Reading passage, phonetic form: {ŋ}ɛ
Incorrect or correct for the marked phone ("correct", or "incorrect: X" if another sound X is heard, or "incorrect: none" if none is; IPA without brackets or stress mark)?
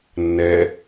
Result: incorrect: nː